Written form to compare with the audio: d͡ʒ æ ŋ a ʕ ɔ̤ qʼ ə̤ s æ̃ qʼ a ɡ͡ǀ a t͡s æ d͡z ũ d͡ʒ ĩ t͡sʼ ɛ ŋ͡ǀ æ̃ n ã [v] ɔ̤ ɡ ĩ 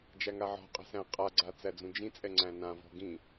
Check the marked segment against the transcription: correct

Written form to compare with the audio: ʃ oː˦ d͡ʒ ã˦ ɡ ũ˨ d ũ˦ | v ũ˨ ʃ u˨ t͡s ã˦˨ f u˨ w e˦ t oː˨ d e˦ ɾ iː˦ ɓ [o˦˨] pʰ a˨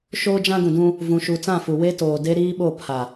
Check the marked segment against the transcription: correct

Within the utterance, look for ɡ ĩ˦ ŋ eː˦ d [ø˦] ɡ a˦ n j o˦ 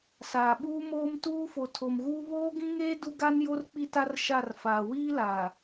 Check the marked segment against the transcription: incorrect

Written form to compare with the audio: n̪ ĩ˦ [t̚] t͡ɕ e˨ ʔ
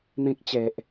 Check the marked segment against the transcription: incorrect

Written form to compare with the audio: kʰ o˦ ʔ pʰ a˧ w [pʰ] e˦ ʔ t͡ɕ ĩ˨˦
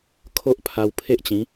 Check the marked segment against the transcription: correct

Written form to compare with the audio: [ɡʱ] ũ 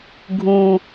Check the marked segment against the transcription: correct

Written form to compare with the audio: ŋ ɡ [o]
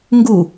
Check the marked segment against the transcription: incorrect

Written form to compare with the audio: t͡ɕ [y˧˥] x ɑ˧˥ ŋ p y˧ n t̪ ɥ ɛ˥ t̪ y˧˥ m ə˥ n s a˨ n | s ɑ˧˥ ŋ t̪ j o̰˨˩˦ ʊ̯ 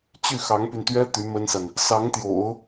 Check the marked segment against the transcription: incorrect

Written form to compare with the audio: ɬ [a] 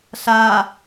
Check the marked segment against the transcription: correct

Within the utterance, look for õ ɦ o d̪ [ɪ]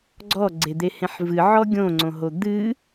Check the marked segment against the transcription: incorrect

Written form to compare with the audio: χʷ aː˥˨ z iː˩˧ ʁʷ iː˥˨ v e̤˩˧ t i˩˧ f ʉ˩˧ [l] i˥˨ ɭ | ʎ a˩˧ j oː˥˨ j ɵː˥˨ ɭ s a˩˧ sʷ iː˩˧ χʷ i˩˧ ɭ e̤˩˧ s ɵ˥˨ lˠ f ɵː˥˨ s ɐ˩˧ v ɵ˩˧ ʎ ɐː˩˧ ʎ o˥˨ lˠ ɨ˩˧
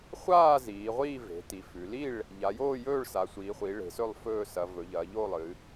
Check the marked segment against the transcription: correct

